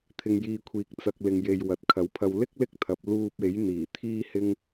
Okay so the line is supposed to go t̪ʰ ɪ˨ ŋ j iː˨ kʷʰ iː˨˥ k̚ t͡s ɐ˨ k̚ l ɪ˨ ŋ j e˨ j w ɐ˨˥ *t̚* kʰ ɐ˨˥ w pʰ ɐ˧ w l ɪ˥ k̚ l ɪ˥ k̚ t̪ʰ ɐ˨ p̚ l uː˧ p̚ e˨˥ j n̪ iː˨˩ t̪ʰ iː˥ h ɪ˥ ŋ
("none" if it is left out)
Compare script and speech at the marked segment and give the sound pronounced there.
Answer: t̚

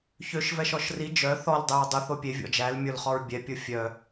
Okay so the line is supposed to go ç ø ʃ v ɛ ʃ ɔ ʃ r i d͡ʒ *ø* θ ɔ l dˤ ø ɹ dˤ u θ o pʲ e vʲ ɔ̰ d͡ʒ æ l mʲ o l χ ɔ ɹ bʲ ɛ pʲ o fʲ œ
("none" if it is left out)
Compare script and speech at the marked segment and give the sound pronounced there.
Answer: œ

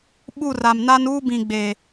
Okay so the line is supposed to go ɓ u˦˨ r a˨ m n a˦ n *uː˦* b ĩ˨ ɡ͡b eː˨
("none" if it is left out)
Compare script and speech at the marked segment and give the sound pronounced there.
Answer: uː˦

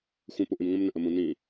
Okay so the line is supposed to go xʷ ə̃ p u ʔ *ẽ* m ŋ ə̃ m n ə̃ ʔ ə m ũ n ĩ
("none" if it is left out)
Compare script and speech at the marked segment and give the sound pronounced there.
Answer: ĩ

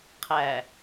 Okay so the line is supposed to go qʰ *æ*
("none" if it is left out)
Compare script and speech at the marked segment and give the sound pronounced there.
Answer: æ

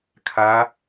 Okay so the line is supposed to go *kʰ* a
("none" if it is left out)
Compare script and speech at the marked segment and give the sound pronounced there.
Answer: kʰ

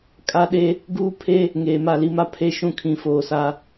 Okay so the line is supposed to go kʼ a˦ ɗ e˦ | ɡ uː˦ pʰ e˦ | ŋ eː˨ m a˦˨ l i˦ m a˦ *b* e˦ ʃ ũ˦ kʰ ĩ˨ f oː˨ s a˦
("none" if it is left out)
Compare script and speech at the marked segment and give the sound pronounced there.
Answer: pʰ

